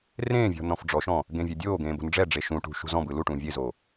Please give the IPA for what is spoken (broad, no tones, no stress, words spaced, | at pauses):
rẽːvʲɔ̤ nɔ̃fɖ͡ʐɔʃɔ̃ | ɡẽvʲɛdʲoːɡẽː bo̤nɖ͡ʐɛɖ͡ʐe ʃũʈṳ ʃṳzɔ̃bɯ luʈũː vʲezoː